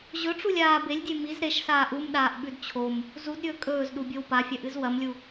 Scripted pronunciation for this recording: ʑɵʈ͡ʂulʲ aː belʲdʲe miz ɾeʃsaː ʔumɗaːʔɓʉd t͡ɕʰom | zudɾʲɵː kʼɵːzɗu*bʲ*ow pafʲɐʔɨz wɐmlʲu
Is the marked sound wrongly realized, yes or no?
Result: no